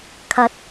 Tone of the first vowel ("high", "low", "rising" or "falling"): rising